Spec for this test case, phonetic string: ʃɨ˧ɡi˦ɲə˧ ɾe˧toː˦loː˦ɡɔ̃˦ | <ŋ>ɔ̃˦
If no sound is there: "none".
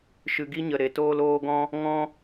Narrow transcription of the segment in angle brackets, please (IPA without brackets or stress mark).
ŋ